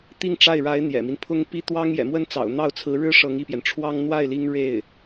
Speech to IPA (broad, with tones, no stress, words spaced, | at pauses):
t̪i˥˧ŋʈ͡ʂa˥˩ɪ̯ɻa˧˥ɪ̯ n̪jɛ̰˨˩mi˦npʰʊ˥ŋpi˥ t̪wɑ˥ŋjɛ̰˨˩mwə˥nt͡sɑ̰˨˩ʊ̯ n̪ɑ˥˩ʊ̯t͡sʰɹ̩˧˥ɻɻ̩˥ ʂɤ˧˥ŋi˥˩pjɛ˩n ʈ͡ʂʰwɑ˥ŋ n̪wa˥˩ɪ̯ li˥ŋ ɻe˥˩ɪ̯